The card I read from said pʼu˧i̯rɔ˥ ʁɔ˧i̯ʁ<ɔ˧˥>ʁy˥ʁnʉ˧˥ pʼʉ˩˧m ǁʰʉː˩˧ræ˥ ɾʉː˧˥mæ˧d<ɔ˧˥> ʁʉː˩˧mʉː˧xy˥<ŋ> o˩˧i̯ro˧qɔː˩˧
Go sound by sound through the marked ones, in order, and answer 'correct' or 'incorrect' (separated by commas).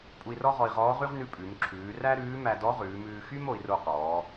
incorrect, correct, incorrect